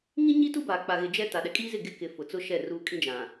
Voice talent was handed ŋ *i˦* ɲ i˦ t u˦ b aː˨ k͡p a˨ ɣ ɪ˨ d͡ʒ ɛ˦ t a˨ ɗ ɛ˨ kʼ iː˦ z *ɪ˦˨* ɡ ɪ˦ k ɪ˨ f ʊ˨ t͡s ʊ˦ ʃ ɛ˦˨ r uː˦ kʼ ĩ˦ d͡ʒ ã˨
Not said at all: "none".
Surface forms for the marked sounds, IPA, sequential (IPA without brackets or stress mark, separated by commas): ĩ˦, ɪ˦˨